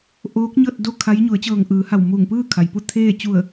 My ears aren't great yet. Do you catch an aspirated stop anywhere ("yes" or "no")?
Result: yes